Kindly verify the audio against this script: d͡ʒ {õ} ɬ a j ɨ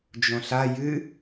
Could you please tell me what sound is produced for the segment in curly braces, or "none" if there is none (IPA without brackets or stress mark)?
õ